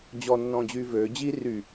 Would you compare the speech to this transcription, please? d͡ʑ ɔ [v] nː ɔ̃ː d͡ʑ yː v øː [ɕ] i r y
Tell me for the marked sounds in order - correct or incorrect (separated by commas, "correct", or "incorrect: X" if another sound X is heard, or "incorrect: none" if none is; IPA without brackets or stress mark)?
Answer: incorrect: none, incorrect: d͡ʑ